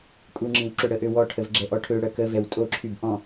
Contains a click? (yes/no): yes